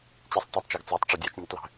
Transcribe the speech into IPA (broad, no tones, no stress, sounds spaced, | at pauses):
t͡ɕ i sˤ tˤ u tˤ t͡ʃ ɑ ɡ t͡s ɑ tˤ ʈ͡ʂ ɒ dʲ ɑ t͡ʃ nʲ ə tˤ l ɛ̤